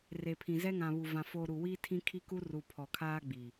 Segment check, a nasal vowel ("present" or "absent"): present